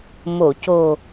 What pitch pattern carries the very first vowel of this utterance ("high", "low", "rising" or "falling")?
low